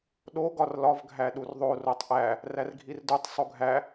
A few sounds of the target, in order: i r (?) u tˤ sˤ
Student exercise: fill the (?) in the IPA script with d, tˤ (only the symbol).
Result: d